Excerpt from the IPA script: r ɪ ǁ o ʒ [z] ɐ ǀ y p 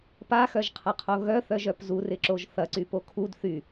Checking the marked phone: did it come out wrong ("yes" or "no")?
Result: yes